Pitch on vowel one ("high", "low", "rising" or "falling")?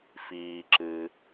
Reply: low